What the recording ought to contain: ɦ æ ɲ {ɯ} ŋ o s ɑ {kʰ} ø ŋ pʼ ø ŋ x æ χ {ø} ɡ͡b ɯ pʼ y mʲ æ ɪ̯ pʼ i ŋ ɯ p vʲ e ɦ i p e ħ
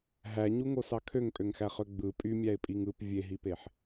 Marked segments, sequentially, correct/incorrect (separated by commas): incorrect, correct, correct